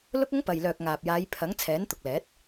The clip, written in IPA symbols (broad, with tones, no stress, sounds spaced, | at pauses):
l ʊ˥ k̚ ʊ˥ ŋ p ɐ˨ j l œː˨ k̚ ŋ aː˨ p̚ j aː˨˧ j pʰ ɐ˨˥ ŋ t͡sʰ ɛː˨˥ n t̪ ʊ˨ k̚ l ɛː˨˥ t̚